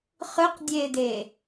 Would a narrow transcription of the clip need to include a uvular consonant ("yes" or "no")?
yes